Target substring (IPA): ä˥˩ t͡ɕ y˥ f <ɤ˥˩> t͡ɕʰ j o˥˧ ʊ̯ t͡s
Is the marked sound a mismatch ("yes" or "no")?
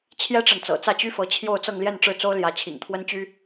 yes